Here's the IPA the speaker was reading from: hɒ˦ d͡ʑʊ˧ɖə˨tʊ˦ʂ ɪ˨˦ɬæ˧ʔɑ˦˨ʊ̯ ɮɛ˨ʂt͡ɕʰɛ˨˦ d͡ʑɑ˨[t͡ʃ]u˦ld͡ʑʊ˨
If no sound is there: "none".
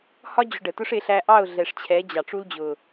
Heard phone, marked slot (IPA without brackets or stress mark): ʈ͡ʂ